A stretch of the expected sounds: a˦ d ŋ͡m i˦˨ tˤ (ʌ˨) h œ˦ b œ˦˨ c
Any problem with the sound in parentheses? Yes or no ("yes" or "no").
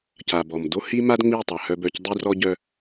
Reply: yes